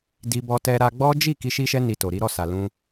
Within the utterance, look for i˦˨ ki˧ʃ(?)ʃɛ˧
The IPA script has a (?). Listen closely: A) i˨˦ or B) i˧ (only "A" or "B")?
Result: B